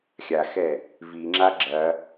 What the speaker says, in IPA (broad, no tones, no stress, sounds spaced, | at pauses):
xʲ a x ɛ | v i ŋ͡ǁ a ɡ͡ǁ ɐ